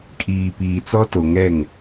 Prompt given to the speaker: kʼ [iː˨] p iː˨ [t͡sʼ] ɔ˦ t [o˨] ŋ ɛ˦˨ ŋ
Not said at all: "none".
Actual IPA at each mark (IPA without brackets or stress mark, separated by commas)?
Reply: iː˨, t͡s, o˨